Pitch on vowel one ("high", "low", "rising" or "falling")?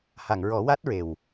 low